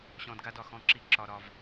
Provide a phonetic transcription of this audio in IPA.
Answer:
ɕ ɔ̃˧ d ɡ a˦ d ɒ˨ x ɔ̃˦˨ ǁ i˦˨ ǁ ɒ˧ ɾ ɒ˧ v

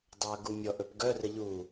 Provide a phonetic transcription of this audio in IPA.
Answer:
dˤ œ ɐ̯ ɡ u mʲ ɔ ʔ ɵ p ɡ œ r ə ʎ u

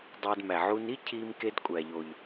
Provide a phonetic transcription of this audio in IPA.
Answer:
dˤ æ˨ d m æ˩ ʕ u˨ n i˦ cʰ i˨ m k e˨ d kʷʼ æ˩ ʎ o˩ ʎ

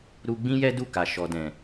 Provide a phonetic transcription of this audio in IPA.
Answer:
ɾ u˧ ɡ͡b ĩ˦ j ɛ˦ d u˦˨ k a˨ ʃ ɔ˨ d ɛ̃˨

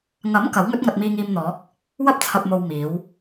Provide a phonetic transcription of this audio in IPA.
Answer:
ŋ ɐ˨˥ m k ɐ˨˥ w ŋ ɵ˥ t̚ ŋ ɐ˧ t̚ m iː˧ ŋ iː˧ m n̪ ɔː˨˥ k̚ | w ɐ˥ p̚ t͡sʰ ɐ˨ p̚ m o˨ w m iː˨˥ w

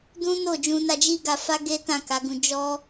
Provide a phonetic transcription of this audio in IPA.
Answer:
d ũ˦ n o˦˨ d͡ʒ ũ˧ n a˧ d͡ʒ i˦ ɡ a˧ f a˦ ɡ e˦ t ã˦˨ k a˨˦ ɡ ũ˧ d͡ʒ ɔ˦

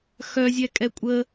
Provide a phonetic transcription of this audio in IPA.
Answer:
x œ zʲ ɛ kʼ ɛ kʷʼ ə

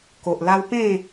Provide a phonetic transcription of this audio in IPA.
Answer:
k o˨ ʔ l a˦ w p ẽ˥˧

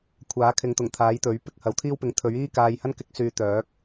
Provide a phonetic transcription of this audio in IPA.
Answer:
kʷʰ aː˨˥ kʰ ɪ˨˧ ŋ t̪ ʊ˨˩ ŋ t̪ʰ aː˨˥ j t̪ ɵ˨˥ ɥ p ɪ˧ k̚ h ɐ˨˥ w t̪ʰ iː˥ w p ɪ˨˧ ŋ t̪ʰ ɵ˨˥ ɥ iː˥ k aː˧ j h ɐ˥ n k ɪ˥ k̚ s yː˨˧ t̪ œː˨˥ k̚

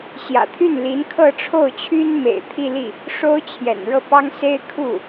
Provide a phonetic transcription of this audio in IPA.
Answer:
ɕ j ä̰˨˩ t̪ʰ y˥˩ n l i˧˥ n kʰ ɤ˥˧ ʈ͡ʂʰ o˥˩ ʊ̯ t͡ɕʰ y˥ n m ḛ˨˩ ɪ̯ t̪ʰ i˥˧ l i˥˩ | ʂ o˥ ʊ̯ t͡ɕʰ j ɛ̰˨˩ n ɻ ɤ˥˩ p ɑ˥ ŋ s e˥ ɪ̯ kʰ u˥˩

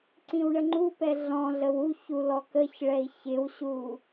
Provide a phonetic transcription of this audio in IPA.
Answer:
ǀ ĩ w ɳ ə ŋ͡ǃ u p ɛ ɮ ɔ̃ ɮ ə w u ç u l ɔ k ə ç ɭ ɛ i̯ ç ɪ w ɕ u

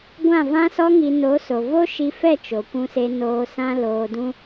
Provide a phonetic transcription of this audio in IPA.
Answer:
ɡʷ ã˦˨ v ã˦ s ɔ˦ ŋ i˧ n o˨˦ s o˨ v o˦ ʃ i˧ f ɛ˦˨ t͡ʃ o˨ kʷ ũ˧ s e˧ n oː˧ s ã˦ l oː˧ d ũ˦

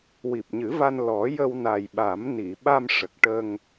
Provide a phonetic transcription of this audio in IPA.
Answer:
w i˨˩ p̚ ɲ ɨ˨˩˦ v a˧ n l ɔ˨˩˦ j ə˧ w n a˨˩ j ɓ a˨˩˦ m n i˨˩˨ ɓ a˧ m ʂ ə˨˩ k̚ ʈ ə˧ ŋ

